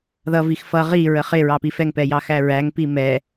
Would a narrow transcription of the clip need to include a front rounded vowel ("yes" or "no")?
no